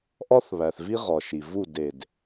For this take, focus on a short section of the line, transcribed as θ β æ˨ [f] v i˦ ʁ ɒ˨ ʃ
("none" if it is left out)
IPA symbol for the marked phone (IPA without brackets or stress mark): θ